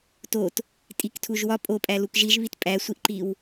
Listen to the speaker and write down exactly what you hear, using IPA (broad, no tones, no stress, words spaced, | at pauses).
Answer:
tot | tʼiktʰuʒwɒ pʼo pʼælukʒiʒ βitpʼæsʷiʔǃiw